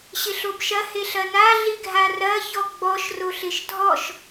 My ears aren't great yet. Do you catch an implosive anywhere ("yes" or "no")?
no